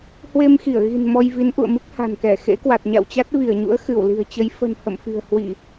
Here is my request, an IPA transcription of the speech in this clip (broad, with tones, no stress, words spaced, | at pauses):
hwe˧mxi˧˩ə̯ɣi̤˨˩n mɔ˧jvi˨˦nʔṵ˧˨ə̯mɨ˦˥k̚ ha̤˨˩nkɛ˧˩ xḛ˧˥kwa˨˩t̚ ɲa̰˧˨wt͡ɕa˦˥t̚vi˧˩ə̯ɲṵ˧˥ə̯ xɨ˧˩wli̤˨˩ə̯t͡ɕə˨˦j fə̤˨˩n hə̰˧˨mfi̤˨˩ə̯hwi˧˩˨